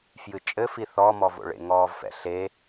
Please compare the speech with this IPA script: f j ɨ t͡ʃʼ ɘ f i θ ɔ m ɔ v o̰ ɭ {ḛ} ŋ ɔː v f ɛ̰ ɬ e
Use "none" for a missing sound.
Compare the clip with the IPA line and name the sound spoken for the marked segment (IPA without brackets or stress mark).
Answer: ḛ